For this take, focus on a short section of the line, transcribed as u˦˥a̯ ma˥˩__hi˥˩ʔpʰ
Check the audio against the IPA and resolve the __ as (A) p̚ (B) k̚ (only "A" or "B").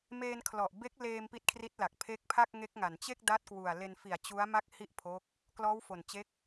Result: B